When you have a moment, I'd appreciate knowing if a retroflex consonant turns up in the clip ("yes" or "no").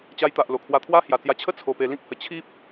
no